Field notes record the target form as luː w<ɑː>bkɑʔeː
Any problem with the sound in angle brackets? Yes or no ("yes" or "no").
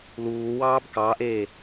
no